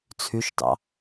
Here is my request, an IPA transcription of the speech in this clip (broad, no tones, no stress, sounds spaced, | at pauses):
t͡sʰ y ʃ t ɑ̰